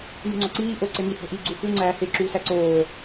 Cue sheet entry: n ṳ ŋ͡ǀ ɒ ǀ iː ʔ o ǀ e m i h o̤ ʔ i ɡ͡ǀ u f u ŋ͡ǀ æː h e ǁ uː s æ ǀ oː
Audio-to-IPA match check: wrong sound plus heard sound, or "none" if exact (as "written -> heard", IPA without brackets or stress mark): none